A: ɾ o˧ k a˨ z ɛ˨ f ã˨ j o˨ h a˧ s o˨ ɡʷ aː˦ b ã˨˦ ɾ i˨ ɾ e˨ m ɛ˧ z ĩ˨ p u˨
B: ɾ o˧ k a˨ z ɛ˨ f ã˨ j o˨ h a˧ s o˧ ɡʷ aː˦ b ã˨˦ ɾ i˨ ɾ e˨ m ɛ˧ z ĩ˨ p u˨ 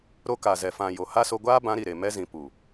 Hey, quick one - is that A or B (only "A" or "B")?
B